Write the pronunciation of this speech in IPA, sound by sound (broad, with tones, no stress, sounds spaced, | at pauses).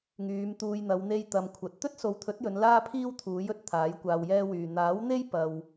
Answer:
ŋ yː˨˧ m t̪ uː˨ j n̪ ɐ˨˧ w n̪ e˧ j t̪ ɐ˨ m kʷʰ ɐ˨ t̚ t̪ ɵ˥ t̚ s o˨ w t̪ʰ ɵ˨˥ t̚ j ɵ˨˧ n l aː˥ pʰ iː˥ w t̪ʰ uː˨˥ j ɵ˧ t̚ t̪ʰ aː˨˥ j kʷ aː˧ w j ɛː˥ w yː˧ n̪ aː˨˥ w n̪ e˥ j p ɐ˧ w